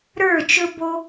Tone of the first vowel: falling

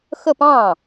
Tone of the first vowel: falling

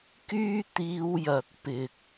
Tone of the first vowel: high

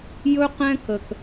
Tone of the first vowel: high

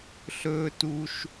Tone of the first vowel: high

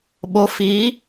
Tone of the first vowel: rising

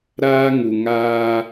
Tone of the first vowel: high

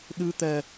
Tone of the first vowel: rising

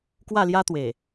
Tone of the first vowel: falling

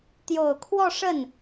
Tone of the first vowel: low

